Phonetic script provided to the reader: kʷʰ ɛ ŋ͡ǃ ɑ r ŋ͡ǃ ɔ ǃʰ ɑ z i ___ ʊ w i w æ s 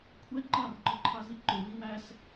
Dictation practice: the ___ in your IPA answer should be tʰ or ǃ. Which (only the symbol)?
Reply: ǃ